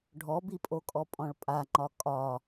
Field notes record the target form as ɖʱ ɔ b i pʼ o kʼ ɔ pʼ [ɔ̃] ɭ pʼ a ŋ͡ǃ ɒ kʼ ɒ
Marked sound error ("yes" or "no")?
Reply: no